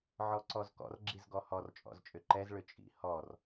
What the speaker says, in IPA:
ʕ ɔ ǀ ɔ z k ɔ̰ r ɡ͡ǁ i z ɡ ɔ h ɔ r t͡ʃʼ ɔ̰ z t͡ʃʼ ʏ ǃ ɛ z ɭ ʏ t͡ʃʼ ḭ h ɔ r

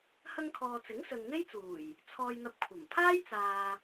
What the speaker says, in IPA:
h ɐ˧ ŋ kʰ ɔː˨ t͡s ɪ˨˥ ŋ s ɵ˨ n n̪ e˥ j t͡s uː˨˩ j | t͡sʰ ɔː˧ j n̪ ɐ˧ p̚ kʷʰ ɐ˨˩ m pʰ aː˥ j t͡s aː˨

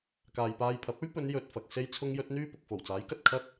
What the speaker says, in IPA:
k aː˨ j p aː˧ j pʰ ɐ˨˥ p̚ ɵ˥ ɥ p ɵ˨˧ n j ɵ˨ t̚ f ɐ˨ k̚ s e˥ j t͡sʰ ʊ˥ ŋ j ɵ˥ t̚ n̪ yː˥ p ʊ˨ k̚ f o˨˩ w t͡s aː˨˥ j k ɐ˨ t̚ kʰ ɐ˥ t̚

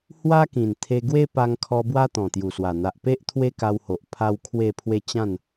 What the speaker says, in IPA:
h w a˦ k ĩ˨˩ n t̪ʰ e˧ ɡ w e˦ p a˧ ŋ kʰ ɔ˧ b w a˦ t̪ ɔ̃˨˩ t̪ j u˨˩ s w a˨˩ n̪ a˨ ʔ p e˦ ʔ t̪ʰ w e˦ k a˧ w h o˨ ʔ pʰ a˧ w kʰ w e˥˧ pʰ w e˦ t͡ɕ ã˥˧ n

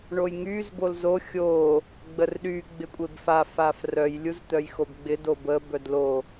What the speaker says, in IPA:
ɳ o j ŋ y z b o l z o xʲ o | ɡ͡b ə r ɗ y ɡ͡b ɪ kʷʼ e b f a f a f r œ j lʲ u z t̪ œ j x o b ɡ͡b ɪ d o b ə b œ d l o

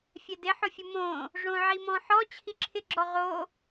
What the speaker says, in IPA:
fʲ ɛ d ɪ ħ ʊ fʲ ʊ m õ | ʐ õ ʕ i m ɔ̃ ħ ɔ t͡ɕʰ i ǁʰ ɪ ɡ͡ǁ ɔ ʁ o

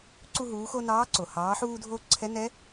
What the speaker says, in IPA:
ǀ u˧ ɦ uː˩˧ x o˧ n ɑː˧˥ ǀ o˩ h ɑː˩˧ ħ uː˧ dʱ o˧ ǀʰ ɛ˧˥ n ɛ˧˥

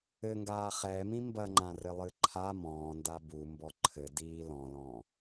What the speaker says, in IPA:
ɘ ŋ ɡ aː χ ɛ m ĩ m b ɐ ŋ͡ǃ ã r ɘ lˠ ɨ ǃʰ a m ɔ̃ː n d a b u m b ɔ ǃʰ ɘ d iː l ɔ̃ l ɔ̃ː

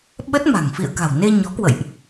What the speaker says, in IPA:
ɓ ə˦˥ t̚ m a̤˨˩ ŋ f ḭ˧˨ ə̯ k a̤˨˩ w n e˧ ɲ ɔ˨˦ k w ə̰˧˨ j ʔ

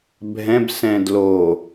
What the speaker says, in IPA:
bʱ ɛ̃ b s ɛ̃ d l o

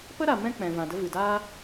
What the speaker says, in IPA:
p ə˦ ɾ a˨ m ɛ̃˦ k͡p ɛ̃˨ v ã˨ d ə˧ v ɨ˨ d aː˦

